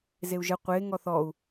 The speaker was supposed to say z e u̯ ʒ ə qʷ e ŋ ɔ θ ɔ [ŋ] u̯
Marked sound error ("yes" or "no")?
yes